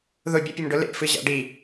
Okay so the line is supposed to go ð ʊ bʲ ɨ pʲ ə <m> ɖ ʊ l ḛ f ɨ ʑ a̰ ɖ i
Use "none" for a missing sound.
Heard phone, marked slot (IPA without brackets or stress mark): m